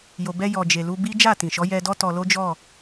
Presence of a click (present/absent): absent